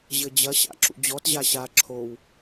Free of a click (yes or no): no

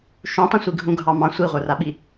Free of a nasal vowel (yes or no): no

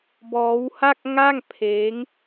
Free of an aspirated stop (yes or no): no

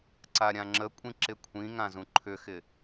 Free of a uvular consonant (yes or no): yes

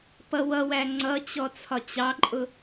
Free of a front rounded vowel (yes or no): yes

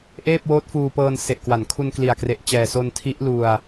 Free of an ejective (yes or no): yes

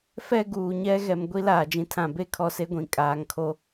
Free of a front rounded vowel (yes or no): yes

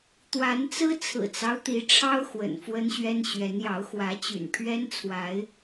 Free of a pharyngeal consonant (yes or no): yes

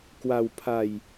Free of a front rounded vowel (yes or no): yes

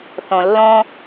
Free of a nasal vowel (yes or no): no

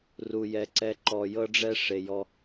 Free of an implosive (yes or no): yes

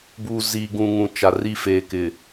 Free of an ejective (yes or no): yes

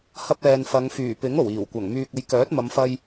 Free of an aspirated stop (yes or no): yes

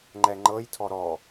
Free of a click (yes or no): no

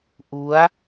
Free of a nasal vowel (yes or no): yes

